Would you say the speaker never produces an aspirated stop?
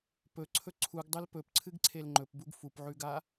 no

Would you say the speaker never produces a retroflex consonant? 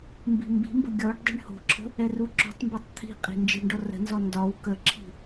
no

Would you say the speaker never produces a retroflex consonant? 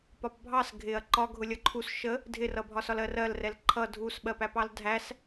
yes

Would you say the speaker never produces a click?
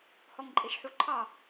no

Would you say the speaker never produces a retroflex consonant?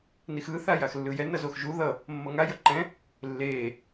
yes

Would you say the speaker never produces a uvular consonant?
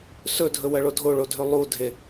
yes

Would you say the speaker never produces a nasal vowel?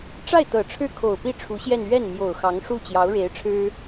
yes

